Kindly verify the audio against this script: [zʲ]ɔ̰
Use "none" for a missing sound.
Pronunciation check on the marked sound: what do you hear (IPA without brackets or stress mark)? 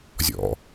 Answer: zʲ